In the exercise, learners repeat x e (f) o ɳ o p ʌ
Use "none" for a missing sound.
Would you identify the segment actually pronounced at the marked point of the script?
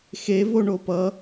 v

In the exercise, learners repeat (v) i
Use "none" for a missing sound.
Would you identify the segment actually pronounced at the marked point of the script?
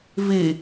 v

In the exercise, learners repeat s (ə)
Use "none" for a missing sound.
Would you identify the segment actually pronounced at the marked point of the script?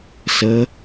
ə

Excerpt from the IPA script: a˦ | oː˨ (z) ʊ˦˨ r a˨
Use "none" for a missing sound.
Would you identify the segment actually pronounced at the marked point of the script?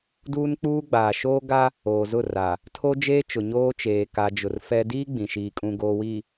z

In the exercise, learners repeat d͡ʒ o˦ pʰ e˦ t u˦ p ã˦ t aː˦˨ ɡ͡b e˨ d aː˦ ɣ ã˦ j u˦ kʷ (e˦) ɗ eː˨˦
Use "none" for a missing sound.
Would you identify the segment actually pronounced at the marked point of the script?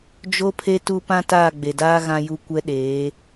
ɛ˦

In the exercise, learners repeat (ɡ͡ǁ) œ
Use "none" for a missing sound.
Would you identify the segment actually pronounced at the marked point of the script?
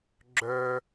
ɡ͡ǁ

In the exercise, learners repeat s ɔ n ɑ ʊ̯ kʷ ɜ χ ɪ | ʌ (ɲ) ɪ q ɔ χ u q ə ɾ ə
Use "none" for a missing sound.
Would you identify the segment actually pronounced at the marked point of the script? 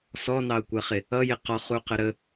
j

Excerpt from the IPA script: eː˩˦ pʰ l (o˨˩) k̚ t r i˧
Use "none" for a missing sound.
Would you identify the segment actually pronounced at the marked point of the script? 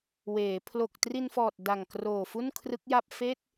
o˨˩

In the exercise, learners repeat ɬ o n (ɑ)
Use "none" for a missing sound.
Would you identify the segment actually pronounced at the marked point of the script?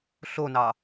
ɑ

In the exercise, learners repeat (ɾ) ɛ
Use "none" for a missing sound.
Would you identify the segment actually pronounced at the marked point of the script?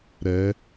ɾ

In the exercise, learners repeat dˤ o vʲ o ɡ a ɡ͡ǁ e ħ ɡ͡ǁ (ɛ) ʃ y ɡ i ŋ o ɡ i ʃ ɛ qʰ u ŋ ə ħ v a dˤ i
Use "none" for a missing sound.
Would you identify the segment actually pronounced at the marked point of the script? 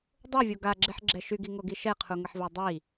ɛ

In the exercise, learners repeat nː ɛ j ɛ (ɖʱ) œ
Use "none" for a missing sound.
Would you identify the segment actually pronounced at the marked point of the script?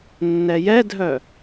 dʱ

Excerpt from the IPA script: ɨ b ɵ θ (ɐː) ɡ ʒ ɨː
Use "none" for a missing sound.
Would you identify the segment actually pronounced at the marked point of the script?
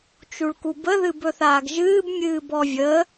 aː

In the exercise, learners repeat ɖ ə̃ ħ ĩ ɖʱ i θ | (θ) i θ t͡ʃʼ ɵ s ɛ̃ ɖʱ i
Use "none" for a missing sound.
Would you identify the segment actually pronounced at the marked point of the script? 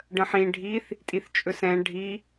tʼ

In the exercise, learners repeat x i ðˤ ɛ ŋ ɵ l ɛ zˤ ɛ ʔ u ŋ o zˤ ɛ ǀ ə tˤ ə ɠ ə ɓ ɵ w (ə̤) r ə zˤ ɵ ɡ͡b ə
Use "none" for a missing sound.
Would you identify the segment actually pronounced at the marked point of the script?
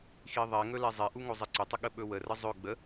ə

